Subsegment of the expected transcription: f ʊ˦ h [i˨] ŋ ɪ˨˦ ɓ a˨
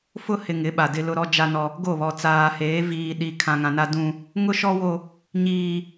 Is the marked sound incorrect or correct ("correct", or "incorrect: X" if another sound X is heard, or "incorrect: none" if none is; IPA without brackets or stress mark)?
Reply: incorrect: ɪ˨